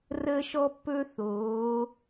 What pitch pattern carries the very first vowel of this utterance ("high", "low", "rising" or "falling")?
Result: high